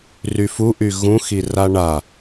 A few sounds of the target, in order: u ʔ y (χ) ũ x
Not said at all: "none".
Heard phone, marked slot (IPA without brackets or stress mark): ɣ